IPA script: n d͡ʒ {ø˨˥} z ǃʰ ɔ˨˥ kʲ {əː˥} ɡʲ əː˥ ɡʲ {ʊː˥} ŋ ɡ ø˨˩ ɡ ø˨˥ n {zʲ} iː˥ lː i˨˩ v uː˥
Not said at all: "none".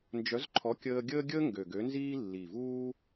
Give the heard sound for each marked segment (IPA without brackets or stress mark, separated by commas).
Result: œ˨˥, əː˥, əː˥, z